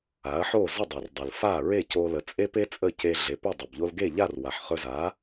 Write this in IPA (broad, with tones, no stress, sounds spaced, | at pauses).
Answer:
a˩˥ ɐ̯ ħ o˥˩ z ə˥˩ dˤ ɵ˩ r dˤ ə˩ l f a˥˩ ɹ e˥˩ c o˧ l ə˩˥ t͡sʼ e˥ p e˥ t͡sʼ ə˥˩ c e˧ ɮ e˩˥ p ɵ˥˩ dˤ ɵ˩ b ʎ o˧ l ɡ e˥˩ ʎ a˥˩ r w a˩ ħ χ ɵ˧ z a˩˥